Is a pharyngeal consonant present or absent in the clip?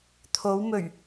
absent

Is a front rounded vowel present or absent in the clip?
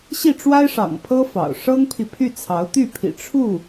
present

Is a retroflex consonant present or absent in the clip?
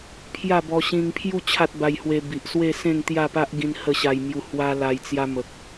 absent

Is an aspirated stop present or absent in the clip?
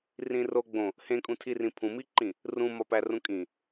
present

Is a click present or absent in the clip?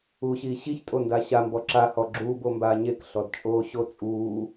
present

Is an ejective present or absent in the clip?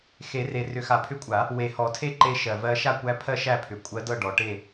present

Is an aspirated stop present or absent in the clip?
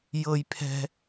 present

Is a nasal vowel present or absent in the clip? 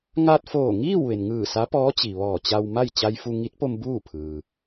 absent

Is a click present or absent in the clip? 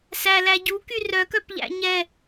absent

